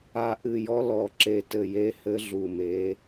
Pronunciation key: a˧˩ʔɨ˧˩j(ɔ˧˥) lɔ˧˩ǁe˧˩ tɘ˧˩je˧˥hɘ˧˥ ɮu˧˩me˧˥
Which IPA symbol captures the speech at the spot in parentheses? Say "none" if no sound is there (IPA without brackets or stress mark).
ɔ˧˥